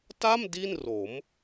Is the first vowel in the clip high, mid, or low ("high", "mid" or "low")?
low